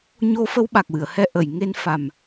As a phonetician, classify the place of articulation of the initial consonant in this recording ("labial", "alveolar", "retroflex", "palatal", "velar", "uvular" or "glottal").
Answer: palatal